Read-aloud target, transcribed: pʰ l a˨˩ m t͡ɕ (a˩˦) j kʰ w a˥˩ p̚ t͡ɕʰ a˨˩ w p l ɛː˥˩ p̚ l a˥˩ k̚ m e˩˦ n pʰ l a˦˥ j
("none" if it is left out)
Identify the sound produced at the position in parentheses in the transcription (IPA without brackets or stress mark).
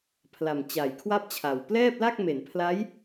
a˩˦